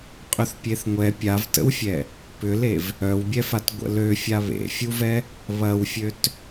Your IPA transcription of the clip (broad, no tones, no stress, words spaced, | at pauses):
qʼʏθpʲeθŋʷɛ pʲavtə̰wfʲɛ | pʏlev | œwbʲɛfat ɡʷə̰lø fʲaβḛfʲuvɛ | βɐwfʲøt